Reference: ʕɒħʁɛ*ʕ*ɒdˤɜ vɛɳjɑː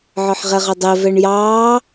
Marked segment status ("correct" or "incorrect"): incorrect